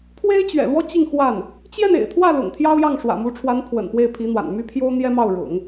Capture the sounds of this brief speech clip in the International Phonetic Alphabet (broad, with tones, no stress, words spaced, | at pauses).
pʰwe˥ɪ̯t͡ɕɥɛ̰˨˩lwɔ˥ t͡ɕi˥˧ŋxwa˥˩n | t͡ɕjɛ˥˩nḛ˨˩ɪ̯t̪ʰwä˥˩ lʊ̰˨˩ŋt̪ʰjɑ˥ʊ̯jɑ˥˩ŋ ʂwä̰˨˩mu˧˥ʈ͡ʂʰwa˧˥n pʰwə̰˨˩n pwe˥˩ɪ̯pʰi˧˥n̪wa̰˨˩n my˥˩pʰjo˥ʊ̯n̪jɛ˥ mɑ˥˩ʊ̯ɻʊ̰˨˩˦ŋ